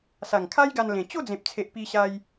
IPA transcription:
s a˨˩ ŋ kʰ a˦ j ɡ a˧ n l ẽ˨˩ t͡ɕ o˥˧ d͡z ẽ˨ p̚ t͡sʰ e˨ ʔ p i˧ ɕ a˧ j

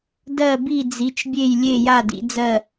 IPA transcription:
d ɜ˥˨ b i˥˨ d͡z i˨˥ t͡ʃ bʲ e˥˨ j lʲ e˥˨ j a˥˨ d ḭ˨˥ d͡z ɜ˥˨

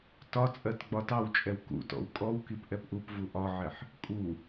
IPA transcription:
t ɒ t͡sʼ ɜ t ɡ͡b ɒ t ɑ w t͡ʃʼ ɛ w k ṵ t ɔ̰ w kʼ ɔ w k i p ʔ ɛ p ʔ u p v u ʔ ɒ ʕ ɛ ħ | kʼ u

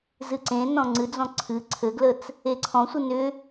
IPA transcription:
z ɨ ǀ ẽ n ɔ̃ ŋ͡ǀ ɨ d͡z ɔ̃ ǀʰ ɨ ǀʰ ɘ ɡ l ə t͡s | e ǀʰ ɔ̃ sʷ ɨ n ʏ

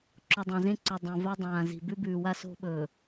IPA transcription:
ǁ o˨ dˤ ã˨ z ẽ˦ ǀ o˨ dˤ õ˨ v a˦ dˤ ãː˨ z i̤˨ b ʉ˦ b ʉː˨ w a˦ s o̤˦ ɓ ɵː˨

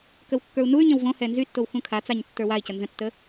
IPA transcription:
k ə w kː ə˞ u̯ n u y̯ ɲ ə̃ w v õ h ɛ n z y tː o w x ũ kʰ a t͡s a ɲ tː ə˞ w a i̯ c ə n z ə̃ tː ə

